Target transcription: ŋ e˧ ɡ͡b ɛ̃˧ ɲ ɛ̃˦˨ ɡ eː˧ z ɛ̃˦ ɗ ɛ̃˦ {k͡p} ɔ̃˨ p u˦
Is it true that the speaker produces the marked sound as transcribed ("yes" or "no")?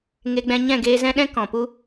no